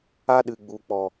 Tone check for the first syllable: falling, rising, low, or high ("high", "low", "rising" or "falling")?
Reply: high